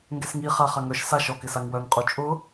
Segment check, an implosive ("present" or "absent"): absent